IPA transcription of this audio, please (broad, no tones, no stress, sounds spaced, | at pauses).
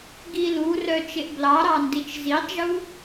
ɡ i l u r œ t͡ʃ e ʔ b l ɑ ɾ ɑ n d i t͡ʃ z i tˤ ʒ u